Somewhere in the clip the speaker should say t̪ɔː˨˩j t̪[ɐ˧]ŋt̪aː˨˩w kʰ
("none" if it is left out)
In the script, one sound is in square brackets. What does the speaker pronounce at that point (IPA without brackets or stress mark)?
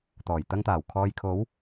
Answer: ɐ˧